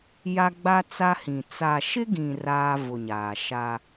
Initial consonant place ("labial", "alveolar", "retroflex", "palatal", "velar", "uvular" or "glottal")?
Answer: palatal